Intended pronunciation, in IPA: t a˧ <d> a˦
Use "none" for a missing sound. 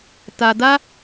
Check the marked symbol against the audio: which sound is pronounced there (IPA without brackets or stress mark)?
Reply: d